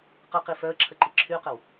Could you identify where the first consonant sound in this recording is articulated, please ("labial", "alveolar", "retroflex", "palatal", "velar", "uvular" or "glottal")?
uvular